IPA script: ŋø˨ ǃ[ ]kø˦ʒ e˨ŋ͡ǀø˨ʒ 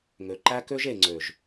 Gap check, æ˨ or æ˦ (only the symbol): æ˦